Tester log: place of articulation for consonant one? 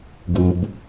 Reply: velar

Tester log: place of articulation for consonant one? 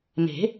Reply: labial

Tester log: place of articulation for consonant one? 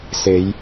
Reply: alveolar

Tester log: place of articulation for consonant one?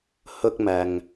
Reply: glottal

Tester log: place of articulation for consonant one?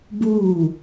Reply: labial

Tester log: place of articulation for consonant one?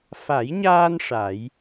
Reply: labial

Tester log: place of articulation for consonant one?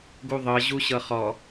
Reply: velar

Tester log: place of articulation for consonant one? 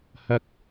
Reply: glottal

